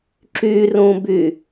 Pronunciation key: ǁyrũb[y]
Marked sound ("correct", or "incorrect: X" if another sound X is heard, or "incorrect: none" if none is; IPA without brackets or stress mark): correct